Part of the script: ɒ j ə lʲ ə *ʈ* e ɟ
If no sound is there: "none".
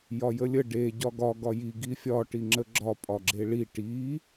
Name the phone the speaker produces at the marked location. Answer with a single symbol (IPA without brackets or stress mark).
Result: ɖ